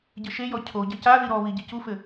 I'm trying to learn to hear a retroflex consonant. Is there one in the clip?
no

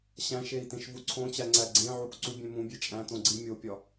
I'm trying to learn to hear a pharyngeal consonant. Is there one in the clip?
yes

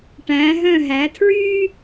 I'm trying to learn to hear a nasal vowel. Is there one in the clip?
yes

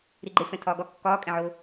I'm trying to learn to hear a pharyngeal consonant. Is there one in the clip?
yes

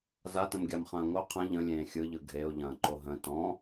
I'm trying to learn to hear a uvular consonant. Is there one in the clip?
yes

